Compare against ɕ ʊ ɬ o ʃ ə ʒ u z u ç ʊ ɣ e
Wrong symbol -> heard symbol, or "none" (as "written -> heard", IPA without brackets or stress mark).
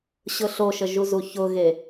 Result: none